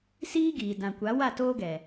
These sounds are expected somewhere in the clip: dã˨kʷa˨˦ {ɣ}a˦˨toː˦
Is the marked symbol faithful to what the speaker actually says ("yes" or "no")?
no